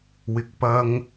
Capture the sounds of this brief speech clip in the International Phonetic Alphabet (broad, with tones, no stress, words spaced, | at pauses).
wɪ˨k̚ pɐ˨ŋ